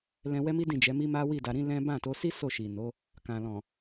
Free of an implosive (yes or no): yes